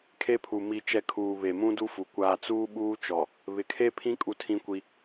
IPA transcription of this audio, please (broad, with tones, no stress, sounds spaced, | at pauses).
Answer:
kʰ e˦ pʰ u˨ m i˨ t͡ʃ ɛ˨ kʰ uː˨ β e˨ m ũ˦ d u˦ f u˨ kʷ aː˨ t͡s uː˦ ɓ uː˦ t͡ʃ ɔ˨ | β ɪ˨ kʰ e˦ pʰ ĩ˦ kʼ u˦ tʰ ĩ˦ kʷ i˦